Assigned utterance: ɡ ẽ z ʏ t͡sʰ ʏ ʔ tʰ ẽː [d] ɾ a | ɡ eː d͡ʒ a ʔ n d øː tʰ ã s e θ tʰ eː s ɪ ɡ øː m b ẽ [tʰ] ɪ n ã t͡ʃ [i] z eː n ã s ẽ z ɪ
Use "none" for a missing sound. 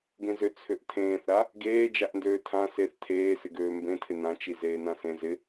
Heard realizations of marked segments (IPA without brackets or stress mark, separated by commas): θ, tʰ, i